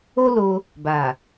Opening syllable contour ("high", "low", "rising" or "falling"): high